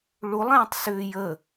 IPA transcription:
ɭ u lˠ ẽː tˤ s ʏː j ə

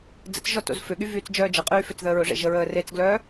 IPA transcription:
d͡z ə̰ t͡s ʒ ɔ t o̰ z f ʏ ɠ y v yː t͡s d͡ʒ œː d͡ʒ ə qʼ yː f ʏ t͡s ð əː ɹ ʊ ʐ ḛ ʒ ə ɹ əː r e t͡s ɡ l œː

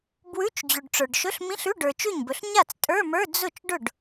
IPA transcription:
b w ʉ˧˥˧ t͡ʃ d͡ʑ ʉ˨ ɖ ʈ͡ʂ ə˞˨ ɖ ʃ ɵ˧˥˧ ɬ m ĩ˧˥˧ ɬ ʉ˧˥˧ ɖ ə˞˨ t͡ʃ ʉ˥˩ ɲ b ɵ˨ ɬ ɲ a˥˩ t͡s tʼ ə˞˧˥˧ m ə˞˧˥˧ d͡z ʊ˥˩ t͡ʃ ɖ ʊ˥˩ ɖ

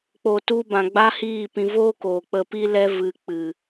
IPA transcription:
k͡p o˨ t u˧ b ã˨ ɡ͡b a˦ h iː˦˨ p ĩ˧ v oː˦ k o˨ k͡p ə˧ p i˦ l ɛ˦ v ɨ˧ k͡p ɨ˨

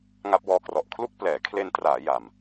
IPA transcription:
ŋ a˦˥ p̚ w ɔː˧ k r ɔ˨˩ ʔ kʰ l u˥˩ k̚ p l ɛː˩˦ kʰ l e˧ n t r aː˩˦ j a˨˩ m

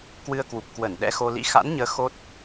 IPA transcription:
k w ɨ˧ ə̯ k w u˨˩ p̚ k w ə˧˩ n ɗ ɛ̰˧˥ x o˧ l ḭ˧˥ x a̰˧˥ n ɲ əː˨˦ x o˦˥ t̚

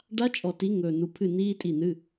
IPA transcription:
ɖ a˦˥ t͡ʃʼ ɔ˨ t i˨˦ ŋ ɵː˨ n̪ u˨˦ pʰ ɨ˦˨ n iː˦˥ tʼ i˦˨ n̪ ɨ˧˥˧

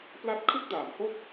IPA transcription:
p l a˦˥ t̚ kʰ ɯ˥˩ k̚ d aː˩˦ m h o˥˩ k̚

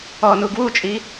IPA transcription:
ɔ n u ɡ w u t͡ʃʼ i

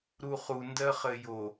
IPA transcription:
ɾ u χ u n d ɜ χ ɘ j o

